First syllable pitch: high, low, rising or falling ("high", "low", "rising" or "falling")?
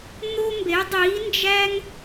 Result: high